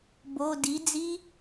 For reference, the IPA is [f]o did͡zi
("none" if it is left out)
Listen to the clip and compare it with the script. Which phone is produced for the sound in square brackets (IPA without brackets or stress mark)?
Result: b